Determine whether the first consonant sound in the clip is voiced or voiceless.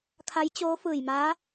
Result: voiceless